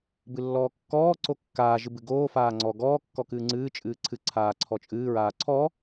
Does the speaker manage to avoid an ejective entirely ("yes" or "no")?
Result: no